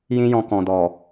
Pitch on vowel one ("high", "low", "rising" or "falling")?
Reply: high